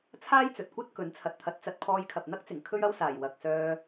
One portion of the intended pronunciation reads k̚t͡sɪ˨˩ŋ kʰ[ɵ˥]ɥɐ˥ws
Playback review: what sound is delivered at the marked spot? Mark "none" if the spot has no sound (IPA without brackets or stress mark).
ɵ˥